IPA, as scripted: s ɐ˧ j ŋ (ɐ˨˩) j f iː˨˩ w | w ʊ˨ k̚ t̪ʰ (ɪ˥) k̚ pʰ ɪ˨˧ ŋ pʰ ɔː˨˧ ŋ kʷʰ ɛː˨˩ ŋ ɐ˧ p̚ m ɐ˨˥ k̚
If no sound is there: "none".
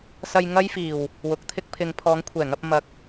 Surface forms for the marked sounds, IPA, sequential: ɐ˥, ɪ˥

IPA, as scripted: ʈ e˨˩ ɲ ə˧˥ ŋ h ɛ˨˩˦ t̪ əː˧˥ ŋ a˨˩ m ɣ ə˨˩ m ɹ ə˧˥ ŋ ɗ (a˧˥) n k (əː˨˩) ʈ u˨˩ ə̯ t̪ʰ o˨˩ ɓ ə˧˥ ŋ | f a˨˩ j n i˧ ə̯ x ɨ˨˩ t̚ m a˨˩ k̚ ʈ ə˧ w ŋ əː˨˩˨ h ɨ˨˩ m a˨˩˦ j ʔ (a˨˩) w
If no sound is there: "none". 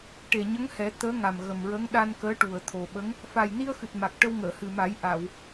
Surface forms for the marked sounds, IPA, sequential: a˧, əː˧˥, a˨˩˨

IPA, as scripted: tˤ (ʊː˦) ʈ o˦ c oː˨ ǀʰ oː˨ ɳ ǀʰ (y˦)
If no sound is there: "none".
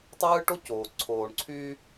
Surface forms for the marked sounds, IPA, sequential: ɯː˦, y˦

